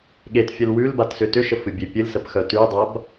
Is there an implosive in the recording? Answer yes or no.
yes